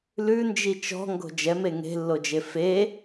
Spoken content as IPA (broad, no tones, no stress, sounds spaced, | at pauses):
l ʉ n d͡ʒ i t͡ʃ ɔ̤ ŋ ɡ o̤ d͡ʒ ɛ m e ŋ e̤ lː o d͡ʒ e f e